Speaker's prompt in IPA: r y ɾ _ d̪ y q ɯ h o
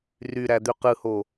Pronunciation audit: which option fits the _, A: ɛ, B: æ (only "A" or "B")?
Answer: B